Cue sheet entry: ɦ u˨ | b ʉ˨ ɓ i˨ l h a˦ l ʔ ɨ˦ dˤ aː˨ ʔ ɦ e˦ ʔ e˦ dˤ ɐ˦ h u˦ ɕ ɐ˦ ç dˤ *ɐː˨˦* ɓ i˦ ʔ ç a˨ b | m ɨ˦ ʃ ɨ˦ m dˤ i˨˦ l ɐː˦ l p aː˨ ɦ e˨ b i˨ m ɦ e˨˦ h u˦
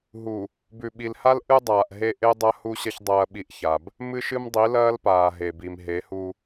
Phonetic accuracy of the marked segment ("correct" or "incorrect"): incorrect